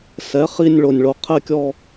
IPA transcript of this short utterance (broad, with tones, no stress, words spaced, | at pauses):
sɛ˩˥χi˦˨nʲ ɭo˩nʲɭo˩ qʰɛ˦˨kʲɔ˦˨